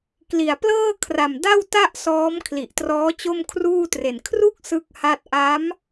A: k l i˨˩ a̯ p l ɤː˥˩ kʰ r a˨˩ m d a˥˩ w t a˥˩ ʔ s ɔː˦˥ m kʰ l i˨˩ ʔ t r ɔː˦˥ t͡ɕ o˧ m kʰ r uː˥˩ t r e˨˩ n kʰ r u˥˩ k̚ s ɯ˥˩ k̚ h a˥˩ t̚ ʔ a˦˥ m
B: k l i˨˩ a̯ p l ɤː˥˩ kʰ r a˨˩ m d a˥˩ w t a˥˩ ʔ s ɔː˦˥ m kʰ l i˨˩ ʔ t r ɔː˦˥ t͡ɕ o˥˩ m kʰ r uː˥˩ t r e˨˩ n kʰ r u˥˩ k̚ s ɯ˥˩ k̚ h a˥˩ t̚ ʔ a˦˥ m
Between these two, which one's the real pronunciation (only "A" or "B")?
B